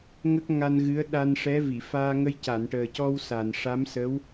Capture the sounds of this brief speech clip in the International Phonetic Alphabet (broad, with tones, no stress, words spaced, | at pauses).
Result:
ŋə˦˥k̚ŋa˧nɣɨ˧˥ə̯ ɗa˧nʂɛ˧˥vi˨˩˨ faː˧ŋə˧jca˨˩˨n ʈəː˨˩cɔ˧w sa˨˩n ʂa˧˥msə˧˥w